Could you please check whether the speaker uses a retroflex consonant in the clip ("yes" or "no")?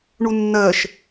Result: yes